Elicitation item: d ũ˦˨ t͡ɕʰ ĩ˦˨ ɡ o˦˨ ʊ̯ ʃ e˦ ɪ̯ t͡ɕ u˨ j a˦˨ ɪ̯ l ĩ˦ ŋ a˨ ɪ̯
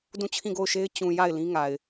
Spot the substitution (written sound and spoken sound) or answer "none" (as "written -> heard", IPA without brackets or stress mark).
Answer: u˨ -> ũ˨